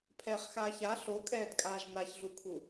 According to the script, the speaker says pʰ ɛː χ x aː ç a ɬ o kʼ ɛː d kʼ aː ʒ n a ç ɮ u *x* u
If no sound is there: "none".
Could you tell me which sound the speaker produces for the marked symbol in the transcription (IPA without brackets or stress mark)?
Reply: kʰ